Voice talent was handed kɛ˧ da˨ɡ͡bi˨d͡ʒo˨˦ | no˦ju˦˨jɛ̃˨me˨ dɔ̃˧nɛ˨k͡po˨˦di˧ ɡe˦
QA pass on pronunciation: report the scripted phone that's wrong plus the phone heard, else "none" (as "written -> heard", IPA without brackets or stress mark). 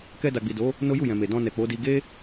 d͡ʒ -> d